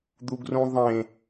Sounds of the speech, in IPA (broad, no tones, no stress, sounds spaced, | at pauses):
d̪ u ɡ r ũ ðˤ ẽ